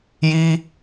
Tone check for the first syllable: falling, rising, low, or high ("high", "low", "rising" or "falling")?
high